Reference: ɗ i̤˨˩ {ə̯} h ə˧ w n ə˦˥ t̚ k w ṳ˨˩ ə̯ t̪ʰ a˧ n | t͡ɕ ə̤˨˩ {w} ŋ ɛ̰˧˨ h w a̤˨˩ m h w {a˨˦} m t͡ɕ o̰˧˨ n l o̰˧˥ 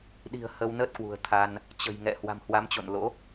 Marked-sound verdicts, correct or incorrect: correct, incorrect, correct

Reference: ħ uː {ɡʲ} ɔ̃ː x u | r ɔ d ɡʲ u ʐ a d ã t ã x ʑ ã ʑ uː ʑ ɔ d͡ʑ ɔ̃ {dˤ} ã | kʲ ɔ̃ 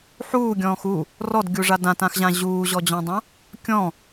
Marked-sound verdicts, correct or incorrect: correct, correct

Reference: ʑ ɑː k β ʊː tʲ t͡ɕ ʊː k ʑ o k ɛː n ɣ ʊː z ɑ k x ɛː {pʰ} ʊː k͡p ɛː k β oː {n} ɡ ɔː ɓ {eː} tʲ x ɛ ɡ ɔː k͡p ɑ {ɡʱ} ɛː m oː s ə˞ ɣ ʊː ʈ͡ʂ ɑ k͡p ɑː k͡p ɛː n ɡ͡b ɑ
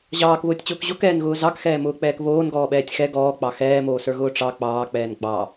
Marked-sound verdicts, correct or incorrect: incorrect, correct, incorrect, incorrect

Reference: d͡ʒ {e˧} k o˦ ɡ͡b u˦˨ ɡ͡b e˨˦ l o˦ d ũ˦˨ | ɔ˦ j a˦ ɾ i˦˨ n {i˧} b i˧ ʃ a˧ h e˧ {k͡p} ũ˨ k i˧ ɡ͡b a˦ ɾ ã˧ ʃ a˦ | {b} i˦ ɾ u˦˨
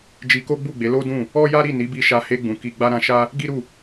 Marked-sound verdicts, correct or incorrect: incorrect, incorrect, incorrect, incorrect

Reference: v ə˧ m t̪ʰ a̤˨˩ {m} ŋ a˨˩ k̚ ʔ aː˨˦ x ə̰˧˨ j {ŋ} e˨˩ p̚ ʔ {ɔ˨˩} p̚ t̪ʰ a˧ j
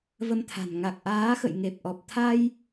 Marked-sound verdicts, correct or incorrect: incorrect, correct, correct

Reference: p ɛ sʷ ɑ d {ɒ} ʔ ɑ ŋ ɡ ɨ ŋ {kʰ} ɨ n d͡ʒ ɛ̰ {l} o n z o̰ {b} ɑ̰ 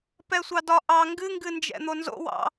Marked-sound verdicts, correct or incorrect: correct, incorrect, incorrect, incorrect

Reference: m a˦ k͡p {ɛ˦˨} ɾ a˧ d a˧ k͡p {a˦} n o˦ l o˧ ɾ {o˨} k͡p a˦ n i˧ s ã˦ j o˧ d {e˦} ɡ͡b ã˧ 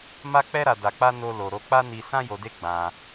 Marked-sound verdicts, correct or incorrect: incorrect, correct, incorrect, correct

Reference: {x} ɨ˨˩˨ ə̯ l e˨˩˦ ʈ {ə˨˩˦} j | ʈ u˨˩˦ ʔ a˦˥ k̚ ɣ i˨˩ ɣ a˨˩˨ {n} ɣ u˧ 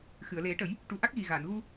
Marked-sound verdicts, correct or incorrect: correct, correct, correct

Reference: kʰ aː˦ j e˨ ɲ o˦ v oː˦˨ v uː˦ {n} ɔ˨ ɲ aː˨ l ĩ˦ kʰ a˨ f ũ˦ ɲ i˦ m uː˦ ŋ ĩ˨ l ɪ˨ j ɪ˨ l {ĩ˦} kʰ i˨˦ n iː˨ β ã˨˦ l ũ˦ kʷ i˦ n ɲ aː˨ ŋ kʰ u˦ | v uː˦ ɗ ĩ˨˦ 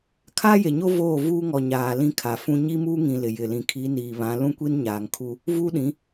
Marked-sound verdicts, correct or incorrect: incorrect, incorrect

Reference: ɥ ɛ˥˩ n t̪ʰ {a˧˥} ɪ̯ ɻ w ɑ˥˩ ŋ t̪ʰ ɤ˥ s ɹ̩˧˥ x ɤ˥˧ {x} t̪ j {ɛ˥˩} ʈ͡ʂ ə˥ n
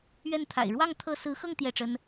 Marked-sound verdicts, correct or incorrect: incorrect, incorrect, correct

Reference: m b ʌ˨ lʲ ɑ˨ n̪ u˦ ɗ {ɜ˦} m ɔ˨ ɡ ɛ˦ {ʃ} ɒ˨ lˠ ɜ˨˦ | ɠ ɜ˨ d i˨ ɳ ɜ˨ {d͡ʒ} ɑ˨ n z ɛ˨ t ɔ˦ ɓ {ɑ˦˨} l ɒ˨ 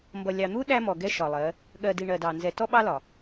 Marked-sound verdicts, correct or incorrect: incorrect, correct, incorrect, incorrect

